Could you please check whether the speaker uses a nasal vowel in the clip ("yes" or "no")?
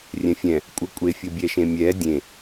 yes